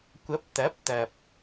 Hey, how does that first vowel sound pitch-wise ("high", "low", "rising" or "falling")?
rising